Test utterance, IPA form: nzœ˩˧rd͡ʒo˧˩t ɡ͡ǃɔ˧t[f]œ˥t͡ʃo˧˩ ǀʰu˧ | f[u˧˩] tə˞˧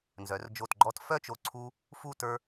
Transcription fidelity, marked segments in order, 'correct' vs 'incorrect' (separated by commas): correct, incorrect